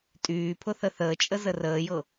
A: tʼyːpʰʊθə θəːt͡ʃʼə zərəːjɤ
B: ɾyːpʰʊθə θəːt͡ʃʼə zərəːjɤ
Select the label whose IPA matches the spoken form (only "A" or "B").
A